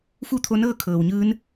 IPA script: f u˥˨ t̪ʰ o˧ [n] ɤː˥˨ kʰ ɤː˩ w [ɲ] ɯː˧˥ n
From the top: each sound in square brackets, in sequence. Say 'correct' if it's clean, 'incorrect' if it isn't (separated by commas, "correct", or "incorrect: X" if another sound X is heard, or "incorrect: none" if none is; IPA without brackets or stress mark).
correct, correct